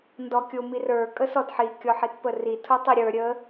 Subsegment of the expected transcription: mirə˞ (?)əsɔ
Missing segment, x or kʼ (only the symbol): kʼ